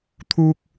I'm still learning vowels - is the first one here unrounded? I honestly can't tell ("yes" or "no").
no